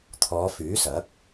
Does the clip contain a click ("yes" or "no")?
no